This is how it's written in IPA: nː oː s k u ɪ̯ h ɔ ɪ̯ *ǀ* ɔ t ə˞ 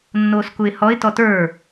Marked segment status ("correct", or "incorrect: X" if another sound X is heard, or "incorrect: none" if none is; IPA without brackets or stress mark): incorrect: t